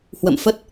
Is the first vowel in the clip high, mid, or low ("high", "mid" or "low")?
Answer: mid